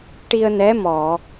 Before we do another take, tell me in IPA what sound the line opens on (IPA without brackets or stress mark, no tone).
ʈ